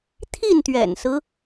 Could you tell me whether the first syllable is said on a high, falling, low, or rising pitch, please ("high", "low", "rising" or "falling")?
falling